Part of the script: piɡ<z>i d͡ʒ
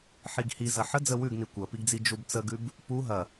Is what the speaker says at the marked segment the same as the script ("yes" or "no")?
no